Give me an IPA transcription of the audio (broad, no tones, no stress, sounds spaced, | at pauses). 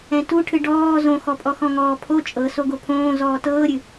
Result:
ɛ̃ t u ʈʰ ɨ ɖ ɔː z õ x ɔ pʼ ɔ x ɔ̃ ŋ ɔː pʰ o t͡ʃʼ ɤ s o ɡ o pʰ õː z ɔː t ɤː ɾʲ ɨ